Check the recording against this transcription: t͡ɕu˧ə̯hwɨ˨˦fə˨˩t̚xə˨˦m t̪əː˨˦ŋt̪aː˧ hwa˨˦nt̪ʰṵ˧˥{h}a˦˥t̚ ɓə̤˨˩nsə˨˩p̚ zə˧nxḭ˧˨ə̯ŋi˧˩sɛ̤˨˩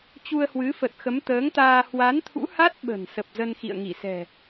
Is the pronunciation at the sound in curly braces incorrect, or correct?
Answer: correct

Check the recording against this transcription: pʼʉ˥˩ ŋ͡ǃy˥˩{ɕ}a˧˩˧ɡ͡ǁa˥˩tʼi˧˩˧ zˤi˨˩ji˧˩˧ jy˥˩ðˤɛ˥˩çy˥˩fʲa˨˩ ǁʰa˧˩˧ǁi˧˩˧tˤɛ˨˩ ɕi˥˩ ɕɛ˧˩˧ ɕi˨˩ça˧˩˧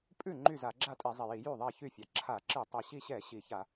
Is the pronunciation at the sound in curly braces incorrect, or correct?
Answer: incorrect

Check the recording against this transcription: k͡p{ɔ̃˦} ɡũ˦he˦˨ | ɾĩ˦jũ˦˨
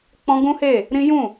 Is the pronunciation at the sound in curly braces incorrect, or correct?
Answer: correct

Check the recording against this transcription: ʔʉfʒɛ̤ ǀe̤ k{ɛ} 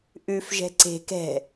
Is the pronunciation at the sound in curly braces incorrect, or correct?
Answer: incorrect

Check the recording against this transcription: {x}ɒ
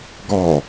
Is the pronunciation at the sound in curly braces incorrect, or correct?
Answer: incorrect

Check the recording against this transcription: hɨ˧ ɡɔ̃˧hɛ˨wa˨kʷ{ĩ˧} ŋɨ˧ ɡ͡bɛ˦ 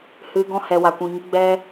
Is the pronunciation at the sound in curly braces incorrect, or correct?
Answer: incorrect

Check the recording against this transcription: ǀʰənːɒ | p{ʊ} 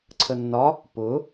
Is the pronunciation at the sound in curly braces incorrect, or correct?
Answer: correct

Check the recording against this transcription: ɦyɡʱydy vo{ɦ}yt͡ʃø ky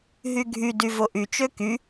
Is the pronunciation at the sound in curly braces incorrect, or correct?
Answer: incorrect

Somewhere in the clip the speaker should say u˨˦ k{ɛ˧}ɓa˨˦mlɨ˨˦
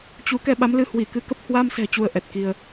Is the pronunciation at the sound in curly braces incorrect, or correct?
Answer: correct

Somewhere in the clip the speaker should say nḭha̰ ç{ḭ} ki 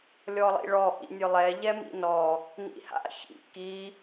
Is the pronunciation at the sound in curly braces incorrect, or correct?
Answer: correct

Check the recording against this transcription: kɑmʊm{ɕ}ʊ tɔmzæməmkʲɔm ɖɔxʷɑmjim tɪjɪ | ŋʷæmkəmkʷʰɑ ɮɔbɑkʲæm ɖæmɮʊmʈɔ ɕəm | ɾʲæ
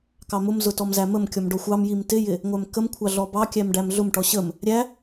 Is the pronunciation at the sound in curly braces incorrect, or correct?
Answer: incorrect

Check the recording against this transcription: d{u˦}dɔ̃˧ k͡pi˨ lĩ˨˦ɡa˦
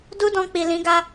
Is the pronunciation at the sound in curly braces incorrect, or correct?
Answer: correct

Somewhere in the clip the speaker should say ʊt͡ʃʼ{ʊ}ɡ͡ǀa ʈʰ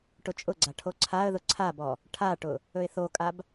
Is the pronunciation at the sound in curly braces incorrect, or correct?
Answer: correct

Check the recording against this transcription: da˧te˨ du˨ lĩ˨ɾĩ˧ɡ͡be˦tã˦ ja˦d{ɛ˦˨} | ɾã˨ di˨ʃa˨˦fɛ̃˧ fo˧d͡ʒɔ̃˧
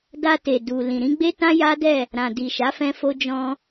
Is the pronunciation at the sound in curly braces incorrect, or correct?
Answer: correct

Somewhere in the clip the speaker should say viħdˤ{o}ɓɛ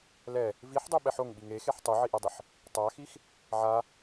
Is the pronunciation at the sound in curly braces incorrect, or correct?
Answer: correct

